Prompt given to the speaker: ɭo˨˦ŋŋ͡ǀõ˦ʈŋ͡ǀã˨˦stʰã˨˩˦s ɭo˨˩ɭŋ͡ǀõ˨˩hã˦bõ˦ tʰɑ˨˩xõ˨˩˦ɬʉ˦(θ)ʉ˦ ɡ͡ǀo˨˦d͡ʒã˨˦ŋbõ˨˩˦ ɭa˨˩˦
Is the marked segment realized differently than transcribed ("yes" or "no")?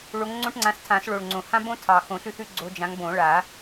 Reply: no